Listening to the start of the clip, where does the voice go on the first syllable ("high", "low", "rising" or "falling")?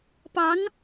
rising